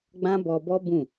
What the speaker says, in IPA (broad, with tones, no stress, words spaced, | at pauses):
ɡ͡bã˦bɔ˧bɔ˦bũ˦˨